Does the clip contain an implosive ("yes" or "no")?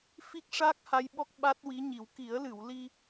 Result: yes